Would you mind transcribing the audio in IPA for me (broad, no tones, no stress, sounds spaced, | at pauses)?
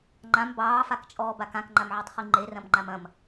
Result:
ŋ͡ǃ ã m b ɑː f a k t͡ʃʼ ɔː b a k ã k ŋ͡ǃ a m ʕ ə˞ tˤ χ i ŋ͡ǃ e r ɐ̃ m ŋ͡ǃ a m ɐ̃ m